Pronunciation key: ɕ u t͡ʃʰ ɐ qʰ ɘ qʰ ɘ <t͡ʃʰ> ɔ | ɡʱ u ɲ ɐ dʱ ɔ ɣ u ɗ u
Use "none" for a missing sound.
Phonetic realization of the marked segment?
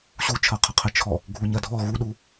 t͡ʃʰ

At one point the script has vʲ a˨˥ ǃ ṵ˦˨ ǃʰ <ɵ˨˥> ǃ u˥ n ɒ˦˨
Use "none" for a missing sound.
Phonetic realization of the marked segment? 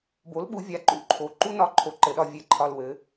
o˨˥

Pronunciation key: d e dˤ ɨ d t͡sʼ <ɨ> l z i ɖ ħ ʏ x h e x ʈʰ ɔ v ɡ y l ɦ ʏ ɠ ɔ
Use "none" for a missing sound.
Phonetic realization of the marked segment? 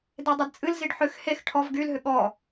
ɨ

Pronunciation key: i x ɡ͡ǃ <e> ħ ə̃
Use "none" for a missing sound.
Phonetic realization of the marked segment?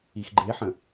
e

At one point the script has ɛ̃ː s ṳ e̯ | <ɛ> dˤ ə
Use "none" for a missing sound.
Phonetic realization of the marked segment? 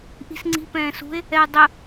ɛ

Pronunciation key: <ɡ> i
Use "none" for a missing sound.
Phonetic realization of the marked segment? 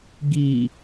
ɡ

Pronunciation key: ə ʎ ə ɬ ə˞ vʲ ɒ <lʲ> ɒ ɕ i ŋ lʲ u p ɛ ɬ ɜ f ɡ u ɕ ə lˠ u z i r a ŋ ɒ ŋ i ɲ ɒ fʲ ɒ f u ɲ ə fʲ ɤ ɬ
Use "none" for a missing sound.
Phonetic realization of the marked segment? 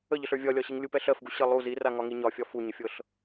lʲ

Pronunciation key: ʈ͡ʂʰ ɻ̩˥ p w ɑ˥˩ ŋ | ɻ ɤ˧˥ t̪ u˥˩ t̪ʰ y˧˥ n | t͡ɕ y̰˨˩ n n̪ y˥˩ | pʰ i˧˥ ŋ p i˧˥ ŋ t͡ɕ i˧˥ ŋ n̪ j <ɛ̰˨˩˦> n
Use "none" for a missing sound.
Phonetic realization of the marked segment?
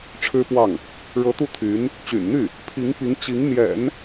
ɛ̰˨˩˦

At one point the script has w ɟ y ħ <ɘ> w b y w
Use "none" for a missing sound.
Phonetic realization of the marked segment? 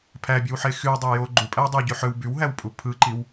ø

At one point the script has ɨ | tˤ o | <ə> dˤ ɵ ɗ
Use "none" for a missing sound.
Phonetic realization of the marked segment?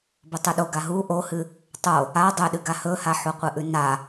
a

